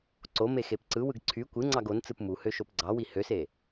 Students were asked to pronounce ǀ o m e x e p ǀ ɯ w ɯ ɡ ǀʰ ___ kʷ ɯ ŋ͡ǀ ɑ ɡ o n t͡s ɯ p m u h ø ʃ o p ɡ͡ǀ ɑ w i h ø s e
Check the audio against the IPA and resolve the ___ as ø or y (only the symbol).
y